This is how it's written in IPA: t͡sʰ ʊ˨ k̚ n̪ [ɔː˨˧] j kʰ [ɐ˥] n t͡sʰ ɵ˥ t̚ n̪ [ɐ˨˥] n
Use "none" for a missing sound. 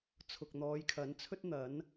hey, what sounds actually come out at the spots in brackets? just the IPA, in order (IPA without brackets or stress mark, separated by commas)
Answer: ɔː˨˧, ɐ˨˥, ɐ˨˥